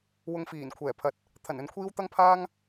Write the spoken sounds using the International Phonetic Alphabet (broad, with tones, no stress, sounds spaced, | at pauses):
w ʊ˧ ŋ f iː˨˩ n kʷʰ ɛː˨˩ pʰ ɐ˨ t̚ | t̪ʰ ɐ˨˩ n ɵ˨ n kʷʰ iː˥ w t̪ ɐ˥ ŋ pʰ aː˥ ŋ